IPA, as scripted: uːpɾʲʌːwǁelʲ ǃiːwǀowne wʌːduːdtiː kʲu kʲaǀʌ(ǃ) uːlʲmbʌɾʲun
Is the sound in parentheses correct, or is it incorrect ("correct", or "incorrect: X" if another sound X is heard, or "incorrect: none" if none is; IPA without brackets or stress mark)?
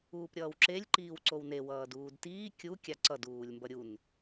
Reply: incorrect: d